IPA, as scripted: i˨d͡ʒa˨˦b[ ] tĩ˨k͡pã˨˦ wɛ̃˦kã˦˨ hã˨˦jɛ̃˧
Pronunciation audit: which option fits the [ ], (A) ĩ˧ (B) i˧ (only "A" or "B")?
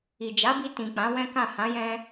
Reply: B